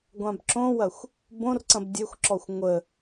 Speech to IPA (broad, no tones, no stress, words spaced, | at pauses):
ɡʷãbǁõwɐxʷ | bõrǀɐ̃b dʲexʷǁɔxʷ ŋʷə